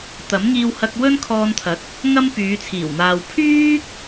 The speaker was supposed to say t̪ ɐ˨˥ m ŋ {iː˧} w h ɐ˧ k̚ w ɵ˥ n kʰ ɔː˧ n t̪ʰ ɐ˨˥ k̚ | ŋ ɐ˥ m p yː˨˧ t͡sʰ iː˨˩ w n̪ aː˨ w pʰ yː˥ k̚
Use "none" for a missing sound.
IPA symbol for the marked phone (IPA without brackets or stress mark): iː˧